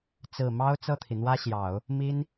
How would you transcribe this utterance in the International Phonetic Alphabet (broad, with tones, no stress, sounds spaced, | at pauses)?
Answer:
t͡s ɹ̩˨˩ m ɑ˥ ʊ̯ t͡s ɤ˥˩ t̪ʰ i˩ n̪ w ä˥ ɕ j ɑ˨˩˦ ʊ̯ | m i˥ n